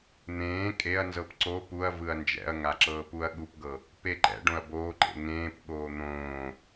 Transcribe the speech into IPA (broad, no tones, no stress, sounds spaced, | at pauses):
n̪ ẽː kʼ e ɐ̯ n z ɤ p ǀ o p u ɐ̯ v ɯ ɐ̯ n d͡ʒ ɛ̰ ɐ̯ ŋ a ǁ ɤː p u ɐ̯ ɠ u p ɡ ɤ | p e ǃ ɛ̰ ɖ õ ɐ̯ b oː ǃ ḛ ŋ ẽː p ɠ oː n̪ õː